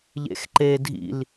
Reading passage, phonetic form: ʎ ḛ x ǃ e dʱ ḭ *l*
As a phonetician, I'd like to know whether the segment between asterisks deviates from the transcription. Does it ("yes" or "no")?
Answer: no